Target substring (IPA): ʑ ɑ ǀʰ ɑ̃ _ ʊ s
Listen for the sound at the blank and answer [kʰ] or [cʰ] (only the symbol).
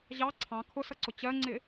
kʰ